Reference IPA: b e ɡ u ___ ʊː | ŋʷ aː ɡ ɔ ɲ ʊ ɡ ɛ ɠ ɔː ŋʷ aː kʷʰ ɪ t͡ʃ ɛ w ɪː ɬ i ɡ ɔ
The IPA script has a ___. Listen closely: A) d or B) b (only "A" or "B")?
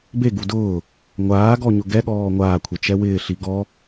A